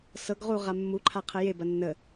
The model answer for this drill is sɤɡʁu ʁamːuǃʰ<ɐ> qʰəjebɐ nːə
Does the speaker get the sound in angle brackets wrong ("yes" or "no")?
yes